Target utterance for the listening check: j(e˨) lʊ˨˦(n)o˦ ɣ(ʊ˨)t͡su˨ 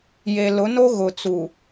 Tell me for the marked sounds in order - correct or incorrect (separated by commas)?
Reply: correct, correct, correct